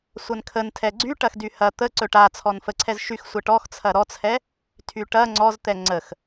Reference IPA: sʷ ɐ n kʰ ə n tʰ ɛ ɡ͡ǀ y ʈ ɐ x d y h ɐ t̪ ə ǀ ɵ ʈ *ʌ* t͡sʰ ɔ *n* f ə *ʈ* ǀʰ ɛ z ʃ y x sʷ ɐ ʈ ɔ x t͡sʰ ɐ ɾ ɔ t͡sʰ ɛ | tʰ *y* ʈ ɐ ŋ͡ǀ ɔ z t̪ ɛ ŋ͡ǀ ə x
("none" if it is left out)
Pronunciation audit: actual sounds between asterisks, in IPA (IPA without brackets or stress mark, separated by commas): a, n, none, y